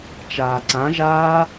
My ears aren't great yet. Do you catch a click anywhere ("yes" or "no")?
yes